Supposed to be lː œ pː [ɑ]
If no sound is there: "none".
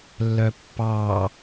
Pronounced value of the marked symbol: ɑ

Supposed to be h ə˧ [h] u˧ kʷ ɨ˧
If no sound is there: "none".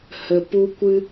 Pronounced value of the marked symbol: p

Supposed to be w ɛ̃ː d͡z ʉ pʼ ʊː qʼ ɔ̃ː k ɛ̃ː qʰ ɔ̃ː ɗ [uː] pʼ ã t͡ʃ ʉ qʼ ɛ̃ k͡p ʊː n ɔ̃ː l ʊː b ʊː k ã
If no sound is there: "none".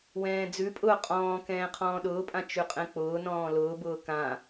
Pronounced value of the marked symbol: ʊː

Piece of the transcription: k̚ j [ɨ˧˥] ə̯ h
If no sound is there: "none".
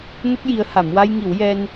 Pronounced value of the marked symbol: i˧˥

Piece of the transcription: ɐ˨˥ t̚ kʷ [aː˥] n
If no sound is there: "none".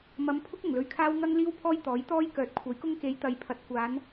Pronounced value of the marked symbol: aː˨˧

